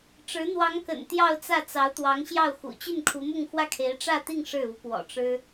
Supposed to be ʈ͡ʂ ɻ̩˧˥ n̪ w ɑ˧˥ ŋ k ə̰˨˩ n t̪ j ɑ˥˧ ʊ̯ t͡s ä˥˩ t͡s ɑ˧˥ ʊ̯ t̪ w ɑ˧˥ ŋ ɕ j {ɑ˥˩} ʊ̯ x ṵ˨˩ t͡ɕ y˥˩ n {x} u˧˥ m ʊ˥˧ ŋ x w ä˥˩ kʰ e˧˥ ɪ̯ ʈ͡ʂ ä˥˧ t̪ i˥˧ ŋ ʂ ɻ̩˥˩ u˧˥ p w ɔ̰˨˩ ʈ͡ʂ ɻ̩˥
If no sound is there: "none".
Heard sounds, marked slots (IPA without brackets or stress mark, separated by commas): ɑ˥˩, kʰ